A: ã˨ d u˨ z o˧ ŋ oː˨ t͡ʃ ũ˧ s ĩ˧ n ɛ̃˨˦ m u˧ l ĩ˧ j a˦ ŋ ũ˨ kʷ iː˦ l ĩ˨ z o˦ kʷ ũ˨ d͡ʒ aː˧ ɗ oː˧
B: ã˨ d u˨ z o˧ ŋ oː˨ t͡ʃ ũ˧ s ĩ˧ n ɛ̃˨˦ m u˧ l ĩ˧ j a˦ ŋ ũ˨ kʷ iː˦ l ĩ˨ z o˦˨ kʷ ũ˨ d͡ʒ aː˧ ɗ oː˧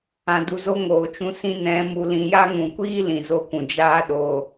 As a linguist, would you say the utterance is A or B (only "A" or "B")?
B